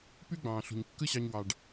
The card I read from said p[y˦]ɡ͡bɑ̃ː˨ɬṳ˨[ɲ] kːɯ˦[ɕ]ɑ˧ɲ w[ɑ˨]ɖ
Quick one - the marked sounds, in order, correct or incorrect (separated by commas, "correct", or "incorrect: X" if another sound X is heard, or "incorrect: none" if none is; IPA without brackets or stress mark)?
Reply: correct, correct, correct, correct